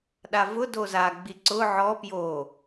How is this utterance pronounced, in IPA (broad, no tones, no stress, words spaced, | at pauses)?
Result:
ɗavʊ doza ɡ͡biǀʊ ʕɔ pjo